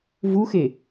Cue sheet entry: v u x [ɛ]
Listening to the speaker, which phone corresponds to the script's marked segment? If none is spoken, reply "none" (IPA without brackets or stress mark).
e